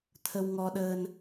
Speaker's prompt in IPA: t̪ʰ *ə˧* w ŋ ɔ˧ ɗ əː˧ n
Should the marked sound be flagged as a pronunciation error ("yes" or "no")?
no